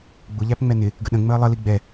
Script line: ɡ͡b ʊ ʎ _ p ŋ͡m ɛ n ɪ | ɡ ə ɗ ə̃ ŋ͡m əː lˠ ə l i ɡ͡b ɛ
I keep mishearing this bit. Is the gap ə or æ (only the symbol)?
æ